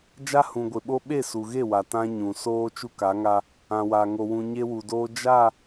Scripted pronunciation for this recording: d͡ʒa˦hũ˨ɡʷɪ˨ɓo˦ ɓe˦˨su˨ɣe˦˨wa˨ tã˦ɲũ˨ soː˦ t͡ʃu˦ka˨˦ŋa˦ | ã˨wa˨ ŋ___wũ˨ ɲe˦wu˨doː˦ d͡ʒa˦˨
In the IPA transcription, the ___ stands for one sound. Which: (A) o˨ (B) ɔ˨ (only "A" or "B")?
A